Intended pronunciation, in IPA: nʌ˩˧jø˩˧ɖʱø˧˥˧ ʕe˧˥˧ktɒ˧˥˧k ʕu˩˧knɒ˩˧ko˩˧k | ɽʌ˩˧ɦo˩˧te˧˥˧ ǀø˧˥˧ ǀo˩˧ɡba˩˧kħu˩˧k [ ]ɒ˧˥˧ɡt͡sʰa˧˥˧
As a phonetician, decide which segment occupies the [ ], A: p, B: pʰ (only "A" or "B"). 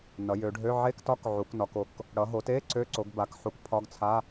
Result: B